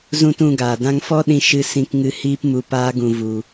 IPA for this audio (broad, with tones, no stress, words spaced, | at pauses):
zũ˦tũ˧ɡaː˨ dã˧ŋfɔ˦ɗĩ˧ ʃɨ˦ sĩ˧kŋɨ˧ hiː˦p mu˧paː˦ɡũ˧ vu˧